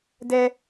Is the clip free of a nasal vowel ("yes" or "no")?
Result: yes